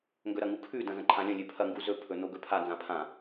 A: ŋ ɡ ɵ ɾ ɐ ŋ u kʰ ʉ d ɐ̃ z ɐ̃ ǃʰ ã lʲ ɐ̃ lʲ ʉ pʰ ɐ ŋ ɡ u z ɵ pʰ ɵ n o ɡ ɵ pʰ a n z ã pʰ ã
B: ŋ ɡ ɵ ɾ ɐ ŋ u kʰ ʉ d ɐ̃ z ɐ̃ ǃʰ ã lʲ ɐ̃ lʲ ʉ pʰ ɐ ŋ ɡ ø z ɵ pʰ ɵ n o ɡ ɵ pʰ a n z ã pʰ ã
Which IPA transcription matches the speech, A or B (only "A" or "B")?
A